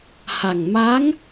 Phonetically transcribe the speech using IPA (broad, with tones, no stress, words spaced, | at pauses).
ha˨˩ŋmaː˧˥ŋ